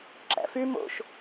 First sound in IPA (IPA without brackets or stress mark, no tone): ǁ